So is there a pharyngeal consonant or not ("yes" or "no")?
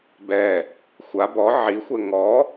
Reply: yes